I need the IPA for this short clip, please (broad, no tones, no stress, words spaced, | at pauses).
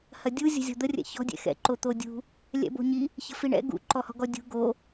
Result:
hɐdʲu zʲə̤zʲɔ̤d̪ərʲɛ̰ çɔ̤ dʲɛ̰xɛ̰ǃo t̪odʲṳ | lʲɛ̰bo̤ɲi | çə̤fiɳɛ̰ ɡṵǃɔ hɔ̤ɡɔdʲṳ ɡo